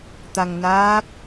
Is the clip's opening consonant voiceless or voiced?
voiceless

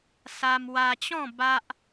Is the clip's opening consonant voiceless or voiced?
voiceless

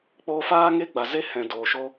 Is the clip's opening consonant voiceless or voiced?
voiceless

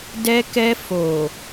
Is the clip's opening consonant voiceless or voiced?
voiced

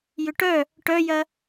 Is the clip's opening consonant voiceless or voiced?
voiced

